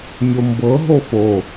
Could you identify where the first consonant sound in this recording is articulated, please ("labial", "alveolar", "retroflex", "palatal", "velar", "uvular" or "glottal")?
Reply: labial